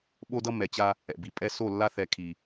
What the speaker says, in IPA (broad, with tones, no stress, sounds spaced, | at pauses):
ɓ o˦ d ʌ˦ m ɛ˨ t͡ɕ a˦ | ɛ̰˨ b i˨ pʼ ɛ˦ s o˦˨ lː a˦ θ ɛ˨ kʰ i˨